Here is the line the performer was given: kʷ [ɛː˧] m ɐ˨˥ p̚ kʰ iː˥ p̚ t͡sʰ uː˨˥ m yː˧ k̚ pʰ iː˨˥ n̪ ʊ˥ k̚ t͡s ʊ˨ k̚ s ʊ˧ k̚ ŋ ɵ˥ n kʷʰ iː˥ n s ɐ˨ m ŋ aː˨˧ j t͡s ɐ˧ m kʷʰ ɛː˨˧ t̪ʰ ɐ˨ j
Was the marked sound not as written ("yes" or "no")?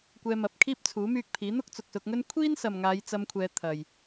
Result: no